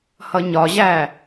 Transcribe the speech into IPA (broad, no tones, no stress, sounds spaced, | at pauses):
h ʌ ɲ ɒ ʑ æ